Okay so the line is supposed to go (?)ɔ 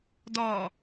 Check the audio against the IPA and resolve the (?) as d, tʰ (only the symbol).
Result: d